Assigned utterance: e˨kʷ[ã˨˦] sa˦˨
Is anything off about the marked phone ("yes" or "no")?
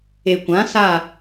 no